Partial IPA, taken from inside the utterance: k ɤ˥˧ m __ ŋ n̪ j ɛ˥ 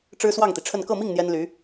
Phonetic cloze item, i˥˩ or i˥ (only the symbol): i˥˩